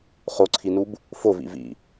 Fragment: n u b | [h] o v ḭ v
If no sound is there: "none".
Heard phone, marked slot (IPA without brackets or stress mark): f